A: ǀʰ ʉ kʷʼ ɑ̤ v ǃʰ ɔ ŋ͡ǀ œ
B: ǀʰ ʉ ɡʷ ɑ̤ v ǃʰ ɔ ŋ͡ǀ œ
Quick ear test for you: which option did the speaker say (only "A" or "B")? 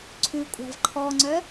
A